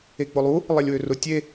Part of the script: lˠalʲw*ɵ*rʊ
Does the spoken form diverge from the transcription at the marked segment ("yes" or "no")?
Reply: yes